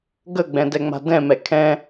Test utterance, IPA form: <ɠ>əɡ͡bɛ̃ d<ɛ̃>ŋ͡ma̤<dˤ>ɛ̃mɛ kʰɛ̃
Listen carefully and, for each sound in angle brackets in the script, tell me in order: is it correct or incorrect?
incorrect, incorrect, incorrect

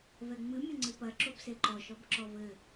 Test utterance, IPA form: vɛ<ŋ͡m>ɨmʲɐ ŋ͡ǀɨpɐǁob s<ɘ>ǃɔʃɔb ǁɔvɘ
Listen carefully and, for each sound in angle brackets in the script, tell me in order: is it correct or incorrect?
correct, incorrect

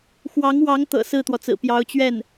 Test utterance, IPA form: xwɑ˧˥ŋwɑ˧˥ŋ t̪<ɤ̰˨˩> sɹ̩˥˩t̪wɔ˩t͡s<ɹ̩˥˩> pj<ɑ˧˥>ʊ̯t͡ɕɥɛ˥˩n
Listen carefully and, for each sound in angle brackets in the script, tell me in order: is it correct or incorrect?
correct, incorrect, correct

